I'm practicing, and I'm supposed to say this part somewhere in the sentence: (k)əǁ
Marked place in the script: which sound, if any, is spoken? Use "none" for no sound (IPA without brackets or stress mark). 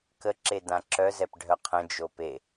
k